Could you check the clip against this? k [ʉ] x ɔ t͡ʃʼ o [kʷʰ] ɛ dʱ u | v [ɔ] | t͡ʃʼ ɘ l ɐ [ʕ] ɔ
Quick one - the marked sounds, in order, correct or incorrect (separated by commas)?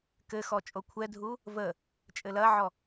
incorrect, correct, incorrect, correct